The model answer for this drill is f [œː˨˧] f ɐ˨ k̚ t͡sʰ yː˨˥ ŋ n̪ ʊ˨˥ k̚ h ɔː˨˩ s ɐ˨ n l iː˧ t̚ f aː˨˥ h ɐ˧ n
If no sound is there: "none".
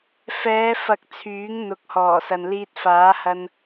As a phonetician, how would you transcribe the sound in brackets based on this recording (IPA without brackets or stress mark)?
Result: ɛː˨˧